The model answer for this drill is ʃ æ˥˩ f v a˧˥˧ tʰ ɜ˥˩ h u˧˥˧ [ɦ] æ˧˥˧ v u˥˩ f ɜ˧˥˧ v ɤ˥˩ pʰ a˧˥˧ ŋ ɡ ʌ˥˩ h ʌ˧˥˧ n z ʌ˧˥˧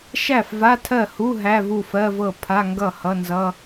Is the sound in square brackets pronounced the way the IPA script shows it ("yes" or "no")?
yes